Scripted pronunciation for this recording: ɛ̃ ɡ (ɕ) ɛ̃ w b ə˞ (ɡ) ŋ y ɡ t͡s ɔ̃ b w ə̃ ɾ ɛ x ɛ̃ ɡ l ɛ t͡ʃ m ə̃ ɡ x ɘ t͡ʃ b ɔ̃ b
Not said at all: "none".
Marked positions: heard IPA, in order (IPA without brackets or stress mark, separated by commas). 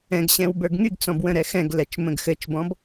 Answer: ɕ, ɡ